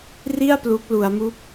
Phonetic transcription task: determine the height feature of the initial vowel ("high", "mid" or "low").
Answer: high